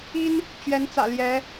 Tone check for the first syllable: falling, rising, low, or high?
high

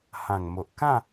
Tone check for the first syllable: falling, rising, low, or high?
low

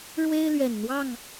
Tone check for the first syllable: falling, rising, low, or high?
high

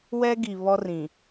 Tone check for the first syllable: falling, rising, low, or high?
high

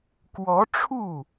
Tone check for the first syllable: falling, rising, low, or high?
rising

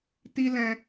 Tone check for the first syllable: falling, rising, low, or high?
high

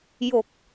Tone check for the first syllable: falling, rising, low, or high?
low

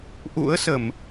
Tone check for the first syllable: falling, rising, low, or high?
rising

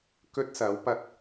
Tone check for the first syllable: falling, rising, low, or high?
high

